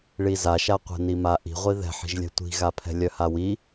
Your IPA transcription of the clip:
ɭ i z a ʃ a qʷ ɛ̤ n i m a ʔ i̤ ʁʷ i ð ɛ̤ ħ i̤ ʒ lʲ ɛ̤ tʷ i̤ ɣ a pʰ ɛ̤ lʲ œ h a w i

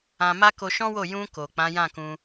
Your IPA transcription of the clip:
ã˧ m a˦ k o˧ ʃ ɔ̃˦ w o˦˨ j ũ˧ k o˨ k͡p ã˨˦ j ã˦˨ k ũ˧

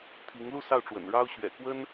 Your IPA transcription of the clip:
t̪ʰ i˧˥ ŋ l u˥˧ s ɑ˥˩ ʊ̯ ʈ͡ʂ w ə̰˨˩ n ɻ ɑ˥ ʊ̯ ɕ ɥ ɛ̰˨˩ k w ə˥ n

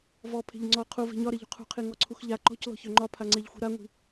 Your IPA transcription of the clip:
v ɔ pʰ e̤ ʎ ŋ͡ǀ ɔ qʰ u v e̤ ɲ ɒ ɾ e ʎ ṳ qʰ ṳ qʰ i ŋ ɔ ǀʰ u x ʎ a ǃ ɔ̤ c l ɔ̤ ç ø ŋ͡ǃ ɒ pʰ a ŋ͡ǀ e ʎ xʷ i̤ ɾ a ŋʷ i̤

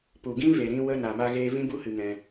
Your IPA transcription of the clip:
p u˨ ɡ ĩ˦ v e˨ ɾ ĩ˧ w ə˧ n a˨ m a˧ ɣ eː˧ v ĩ˦ b u˦ h ɨ˧ ŋ ɛ̃˧

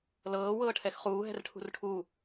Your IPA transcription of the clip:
l ɤː w ɤː ʈʰ ɛ x χ uː ɦ ɛ̤ r ʈʰ ṳ r ʈʰ u

